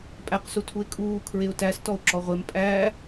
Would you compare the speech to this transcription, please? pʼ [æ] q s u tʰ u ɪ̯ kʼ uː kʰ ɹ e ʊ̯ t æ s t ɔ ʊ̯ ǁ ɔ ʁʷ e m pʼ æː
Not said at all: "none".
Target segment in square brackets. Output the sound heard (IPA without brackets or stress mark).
æ